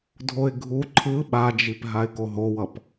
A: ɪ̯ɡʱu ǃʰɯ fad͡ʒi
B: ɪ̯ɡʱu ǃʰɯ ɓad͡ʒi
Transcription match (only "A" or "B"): B